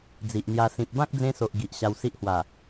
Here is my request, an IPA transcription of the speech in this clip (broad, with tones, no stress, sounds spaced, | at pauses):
d͡z i˨ ʔ n̪ j a˧ s ĩ˨ p̚ b ã˦ k̚ d͡z ẽ˧ s o˨ ʔ ɡ i˨ ʔ ɕ a˧ w s i˦ ʔ h w a˨˩